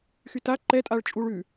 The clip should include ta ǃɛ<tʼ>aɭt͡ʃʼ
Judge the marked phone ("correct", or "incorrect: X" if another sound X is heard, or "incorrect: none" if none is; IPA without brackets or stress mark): correct